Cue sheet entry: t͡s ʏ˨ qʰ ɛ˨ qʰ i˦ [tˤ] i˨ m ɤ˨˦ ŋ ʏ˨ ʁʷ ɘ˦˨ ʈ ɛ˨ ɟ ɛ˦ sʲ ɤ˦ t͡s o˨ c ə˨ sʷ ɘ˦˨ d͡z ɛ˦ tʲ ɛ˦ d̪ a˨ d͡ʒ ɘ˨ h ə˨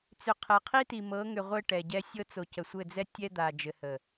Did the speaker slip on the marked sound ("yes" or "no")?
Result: yes